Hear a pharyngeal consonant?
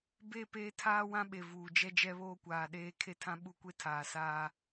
no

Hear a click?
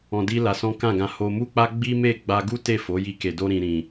no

